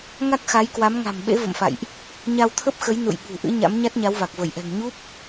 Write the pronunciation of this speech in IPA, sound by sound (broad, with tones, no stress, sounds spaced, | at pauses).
ŋ a˦˥ k̚ x a˨˦ j k w a˨˦ m ŋ a̤˨˩ m ɓ ḛ˧˥ v ə̰˧˨ m f a̰˧˨ j ʔ | ɲ a˧ w t̪ʰ ə˦˥ p̚ x ə˨˦ j n ṵ˧˨ j ɓ ṳ˨˩ ʔ ɨ̰˧˥ ɲ a̰˧˥ m ɲ a˦˥ t̚ ɲ a˨˦ w v a˨˩ k̚ v ə˧˩ j ʔ ɛ̤˨˩ ŋ ɲ u˦˥ p̚